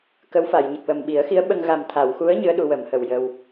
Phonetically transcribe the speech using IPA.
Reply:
k ə˧˥ w f a˨˩˨ j ɲ ə˨˩ k̚ w ə˨˩ m ɓ i˨˩˦ ə̯ x i˧˥ ə̯ ɓ ə˧ ŋ ɣ a˨˩ m t̪ʰ a˨˩˨ w x u˧˥ ə̯ ɲ ɨ˧˥ ə̯ ɗ u˧˥ w ə˨˩˦ m h ə˨˩ w j ə˧ w

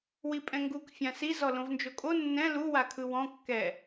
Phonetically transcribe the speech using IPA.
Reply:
w i pʼ ɛ̃ ŋ ɡ u k fʲ ã s i z ɔ l õ v n d͡ʒ o kʼ o nː ɛ̃ l u w a kʰ ɯ w ɔ̃ kː ɛ

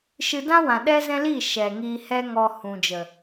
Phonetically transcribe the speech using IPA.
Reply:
ʃ ɨ˧ d ã˦ w ã˨ ɗ ɛ˦ z ɛ̃˦ l i˦˨ ʃ ɛ˨ ŋ i˧ h ɛ˦ ŋ ɔ˧ h ũ˨ d͡ʒ ə˨

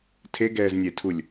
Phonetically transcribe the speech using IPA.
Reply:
tʰ e ɡ ɛː z nʲ e tʰ u lʲ

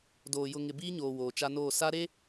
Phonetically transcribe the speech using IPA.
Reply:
d oː˨ j ʊ˨ ŋ ɪ˨ b iː˦ ɲ oː˨ w oː˨ t͡ʃ a˦ n oː˦˨ s a˦ ɾ e˦

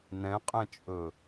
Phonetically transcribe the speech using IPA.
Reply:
n ɛ̃ qʼ ɛ̃ t͡ʃʼ ɵ

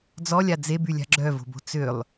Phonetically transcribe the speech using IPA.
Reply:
d͡z ɔ lʲ a d͡z e b y lʲ a̤ ɡ͡ǁ œ v o̤ b o̤ t͡s ø lˠ

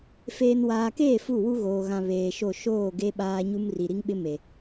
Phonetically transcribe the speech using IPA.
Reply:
f eː˨ n w aː˨ k eː˦˨ f u˦˨ w u˦ ɣ oː˨ ɣ ã˨ β eː˨ ʃ o˦˨ ʃ oː˦˨ ɡ e˦ ɓ aː˦ ɲ u˦ m r i˨ ɾ i˦ ŋ ɓ ɪ˦ m e˨

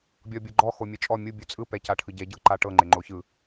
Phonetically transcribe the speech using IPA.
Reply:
bʲ ɔ bʲ ɤ ɡ͡ǃ ɔ x o mʲ ɛ t͡ʃʼ ɔ mʲ u bʲ u t͡sʼ ɯ p ɛ c a ʈʰ ɯ ɟ ɛ ɟ ɤ ǃ a ʈ ɤ ŋ͡ǃ e ŋ͡ǃ o ç ɯ

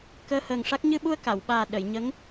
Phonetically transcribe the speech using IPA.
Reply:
k əː˧ h əː˨˩ ŋ ʂ a˦˥ k̚ ɲ ɨ˧ ɓ u˧ ə̯ k a˨˩˨ w ɓ aː˨˩ ɗ ə˨˩˨ j ɲ ə˧˥ ŋ

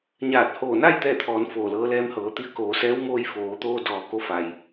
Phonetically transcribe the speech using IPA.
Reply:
ɲ aː˧˩ t̚ h oː˧˩ n a˥˨ j t̪ ɛː˥˨ t̪ʰ ɔː˩˧ n f oː˧˩ l ɤː˧˥ l ɛː˧˥ m h ɤː˩˧ t̪ i˧ ə̯ k oː˩˧ s ɛː˧˥ w m oː˧ j f oː˩˧ t̪ oː˧ d ɔː˩ k o˧ f a˩ j

